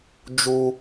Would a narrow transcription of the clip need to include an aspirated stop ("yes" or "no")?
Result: no